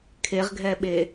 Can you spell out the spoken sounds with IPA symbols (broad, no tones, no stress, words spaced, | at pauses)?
kʰeʁɡʱɛɓe